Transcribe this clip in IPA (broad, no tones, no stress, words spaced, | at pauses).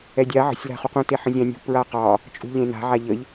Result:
ɛdʲa ʕə̤sʲ la̤χuqũ teħə̃zʲɑ̃nʲṳ pɹaqɑ | t͡ʃʼṳʎẽna̤ ʕaʎəʎ